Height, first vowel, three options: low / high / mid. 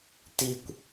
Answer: high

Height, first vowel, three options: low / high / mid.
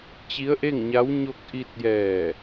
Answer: high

